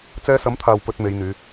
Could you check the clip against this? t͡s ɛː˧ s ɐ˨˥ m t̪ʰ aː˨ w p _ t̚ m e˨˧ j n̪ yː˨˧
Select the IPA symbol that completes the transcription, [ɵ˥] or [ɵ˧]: ɵ˧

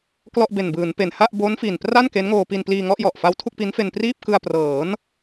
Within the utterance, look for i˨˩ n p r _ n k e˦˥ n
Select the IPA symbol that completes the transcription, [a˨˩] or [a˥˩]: a˥˩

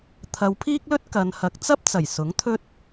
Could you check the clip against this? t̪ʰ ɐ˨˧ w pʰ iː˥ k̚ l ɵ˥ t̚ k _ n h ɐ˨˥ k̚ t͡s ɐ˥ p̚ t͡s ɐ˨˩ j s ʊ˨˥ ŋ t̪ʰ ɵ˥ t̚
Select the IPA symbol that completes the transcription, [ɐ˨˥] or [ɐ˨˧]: ɐ˨˧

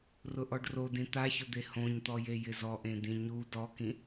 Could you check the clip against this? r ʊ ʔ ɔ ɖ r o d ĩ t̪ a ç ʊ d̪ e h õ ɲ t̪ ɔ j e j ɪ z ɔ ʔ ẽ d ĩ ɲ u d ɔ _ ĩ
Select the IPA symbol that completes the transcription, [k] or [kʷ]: k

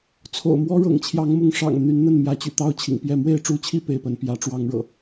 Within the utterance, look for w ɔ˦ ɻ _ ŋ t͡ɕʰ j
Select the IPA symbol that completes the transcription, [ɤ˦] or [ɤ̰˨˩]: ɤ̰˨˩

